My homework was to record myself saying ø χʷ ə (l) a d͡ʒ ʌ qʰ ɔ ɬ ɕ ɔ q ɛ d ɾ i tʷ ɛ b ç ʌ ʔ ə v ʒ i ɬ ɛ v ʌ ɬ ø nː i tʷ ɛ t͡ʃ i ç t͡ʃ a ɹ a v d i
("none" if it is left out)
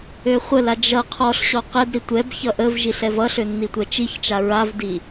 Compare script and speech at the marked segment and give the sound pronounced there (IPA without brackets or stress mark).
l